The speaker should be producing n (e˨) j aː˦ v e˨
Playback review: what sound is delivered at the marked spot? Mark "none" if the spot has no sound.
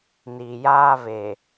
i˨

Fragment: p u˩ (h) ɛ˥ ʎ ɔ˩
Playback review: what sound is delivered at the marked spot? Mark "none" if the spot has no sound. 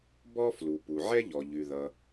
ʕ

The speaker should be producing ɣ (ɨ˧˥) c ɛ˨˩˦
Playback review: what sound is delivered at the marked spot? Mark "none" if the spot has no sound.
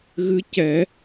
ɨ˧˥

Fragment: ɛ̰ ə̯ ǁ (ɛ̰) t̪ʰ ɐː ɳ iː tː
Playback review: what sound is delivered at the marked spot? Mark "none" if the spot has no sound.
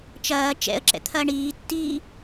ɛ̰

